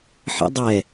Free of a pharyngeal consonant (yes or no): no